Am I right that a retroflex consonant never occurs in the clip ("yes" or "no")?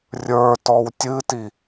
yes